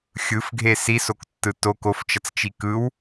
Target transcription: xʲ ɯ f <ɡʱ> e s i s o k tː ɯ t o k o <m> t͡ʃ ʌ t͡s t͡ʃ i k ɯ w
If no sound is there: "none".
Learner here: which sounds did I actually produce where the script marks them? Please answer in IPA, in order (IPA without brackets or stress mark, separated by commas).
ɡʱ, f